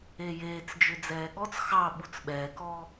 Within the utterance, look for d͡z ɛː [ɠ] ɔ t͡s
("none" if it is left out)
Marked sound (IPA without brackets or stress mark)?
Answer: ɠ